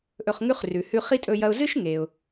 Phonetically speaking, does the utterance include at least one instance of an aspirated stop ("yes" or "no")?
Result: no